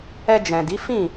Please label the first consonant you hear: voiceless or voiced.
voiced